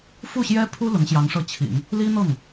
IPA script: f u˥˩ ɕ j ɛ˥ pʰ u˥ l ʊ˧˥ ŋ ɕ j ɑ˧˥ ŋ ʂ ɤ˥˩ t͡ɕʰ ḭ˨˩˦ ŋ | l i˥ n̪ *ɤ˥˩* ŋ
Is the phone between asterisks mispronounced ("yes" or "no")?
no